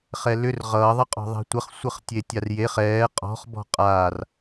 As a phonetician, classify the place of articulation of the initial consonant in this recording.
uvular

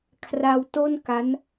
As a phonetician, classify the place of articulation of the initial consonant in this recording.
velar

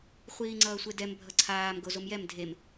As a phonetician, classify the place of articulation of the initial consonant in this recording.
uvular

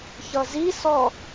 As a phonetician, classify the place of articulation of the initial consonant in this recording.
palatal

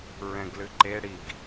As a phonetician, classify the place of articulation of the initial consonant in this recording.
alveolar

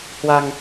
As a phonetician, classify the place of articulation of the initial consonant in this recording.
glottal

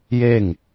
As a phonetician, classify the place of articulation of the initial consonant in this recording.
palatal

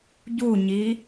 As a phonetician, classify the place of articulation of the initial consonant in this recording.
palatal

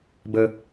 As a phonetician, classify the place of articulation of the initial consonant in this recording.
labial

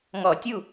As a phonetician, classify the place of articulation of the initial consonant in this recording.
velar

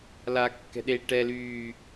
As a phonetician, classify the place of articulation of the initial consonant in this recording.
alveolar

